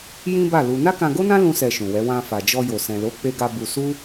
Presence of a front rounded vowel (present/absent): absent